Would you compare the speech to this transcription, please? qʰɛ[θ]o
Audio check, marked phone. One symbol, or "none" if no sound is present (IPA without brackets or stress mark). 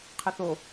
θ